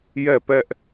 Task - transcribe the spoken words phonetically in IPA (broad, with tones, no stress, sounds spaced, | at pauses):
j ɛ˦˨ p ɛ˦ ʔ